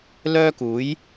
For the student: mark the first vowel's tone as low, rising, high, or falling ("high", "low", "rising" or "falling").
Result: high